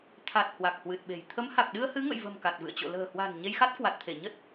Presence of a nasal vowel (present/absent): absent